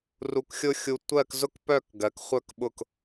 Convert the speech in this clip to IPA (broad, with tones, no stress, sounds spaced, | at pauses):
r u˧ k xʲ ʊ˥ xʲ u˧ tʷ ɜ˥˧ k z ʊ˥ k p œ˥˧ k ɡ ɜ˩˧ k χʷ œ˧ k ɓ ʊ˧˩ k